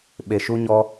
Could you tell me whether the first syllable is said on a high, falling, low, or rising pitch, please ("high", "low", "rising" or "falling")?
low